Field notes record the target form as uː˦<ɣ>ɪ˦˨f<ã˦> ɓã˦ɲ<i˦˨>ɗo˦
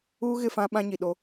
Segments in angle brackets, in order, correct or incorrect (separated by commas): correct, correct, incorrect